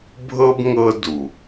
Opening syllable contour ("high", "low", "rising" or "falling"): high